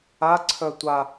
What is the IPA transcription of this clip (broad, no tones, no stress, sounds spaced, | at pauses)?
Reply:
a ǀʰ œ tʷ a